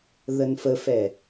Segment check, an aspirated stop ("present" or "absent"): absent